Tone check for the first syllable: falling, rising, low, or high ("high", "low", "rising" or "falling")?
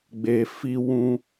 low